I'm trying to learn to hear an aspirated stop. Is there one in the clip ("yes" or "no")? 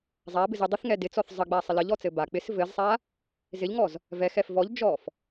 no